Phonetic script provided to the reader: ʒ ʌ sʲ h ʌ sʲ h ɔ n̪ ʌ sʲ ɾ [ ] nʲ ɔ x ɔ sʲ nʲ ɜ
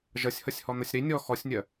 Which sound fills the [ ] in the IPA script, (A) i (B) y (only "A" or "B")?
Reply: A